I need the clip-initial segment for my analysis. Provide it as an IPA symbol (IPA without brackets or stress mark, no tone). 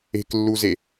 e̤